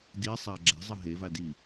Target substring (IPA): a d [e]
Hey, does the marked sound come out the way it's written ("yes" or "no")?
no